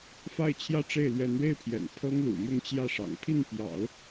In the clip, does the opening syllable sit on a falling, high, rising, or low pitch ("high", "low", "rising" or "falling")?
falling